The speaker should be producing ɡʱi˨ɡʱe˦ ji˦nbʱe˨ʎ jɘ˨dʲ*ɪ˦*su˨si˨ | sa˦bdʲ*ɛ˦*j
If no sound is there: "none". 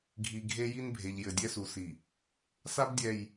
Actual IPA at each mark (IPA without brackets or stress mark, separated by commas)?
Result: ɛ˦, ɛ˨